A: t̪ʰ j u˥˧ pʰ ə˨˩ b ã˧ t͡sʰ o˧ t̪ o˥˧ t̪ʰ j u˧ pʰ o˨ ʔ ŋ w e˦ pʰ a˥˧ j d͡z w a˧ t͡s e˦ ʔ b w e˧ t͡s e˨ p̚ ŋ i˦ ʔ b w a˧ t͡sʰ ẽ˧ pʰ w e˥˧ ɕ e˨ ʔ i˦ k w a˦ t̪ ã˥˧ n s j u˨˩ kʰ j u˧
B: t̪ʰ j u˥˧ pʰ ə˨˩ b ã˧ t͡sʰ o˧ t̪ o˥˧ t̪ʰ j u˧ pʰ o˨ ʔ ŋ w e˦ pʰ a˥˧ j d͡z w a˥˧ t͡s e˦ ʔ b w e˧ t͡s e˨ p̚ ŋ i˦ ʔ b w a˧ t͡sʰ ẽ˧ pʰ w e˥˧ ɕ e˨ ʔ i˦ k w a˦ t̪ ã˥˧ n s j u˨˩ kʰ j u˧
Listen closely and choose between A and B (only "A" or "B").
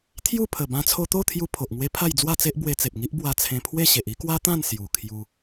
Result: B